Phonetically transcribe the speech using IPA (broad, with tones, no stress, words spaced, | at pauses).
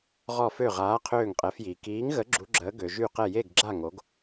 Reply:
ʁɔ˧˩fø˧˩ ʁaː˩˧ qʰøː˧˩ŋqʼɛ˩˧fjiː˩ kiː˨˥ŋɣə˨˥ ɡ͡ǁu˩˧ɡ͡ǁəː˩˧ ɡø˩ʒy˧˩qɛ˧˩ je˧˩ɡɡ͡ǁa˧˩ ŋo˩˧ɡ